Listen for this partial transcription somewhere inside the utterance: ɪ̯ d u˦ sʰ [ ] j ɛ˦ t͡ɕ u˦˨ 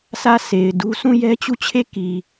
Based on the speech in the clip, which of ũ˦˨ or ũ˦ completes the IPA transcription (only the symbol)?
ũ˦˨